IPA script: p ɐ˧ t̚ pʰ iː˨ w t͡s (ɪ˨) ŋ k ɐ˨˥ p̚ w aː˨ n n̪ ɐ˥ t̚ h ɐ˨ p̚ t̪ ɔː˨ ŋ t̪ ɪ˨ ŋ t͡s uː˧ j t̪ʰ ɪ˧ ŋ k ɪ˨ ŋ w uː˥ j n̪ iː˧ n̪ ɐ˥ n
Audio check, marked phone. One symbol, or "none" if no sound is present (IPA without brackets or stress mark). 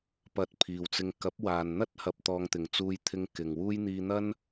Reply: ɪ˧